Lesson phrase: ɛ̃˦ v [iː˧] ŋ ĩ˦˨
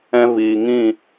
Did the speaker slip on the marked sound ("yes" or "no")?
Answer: no